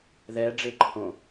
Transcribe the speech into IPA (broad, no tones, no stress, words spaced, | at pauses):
ðɛ ɖ͡ʐeǃʰõ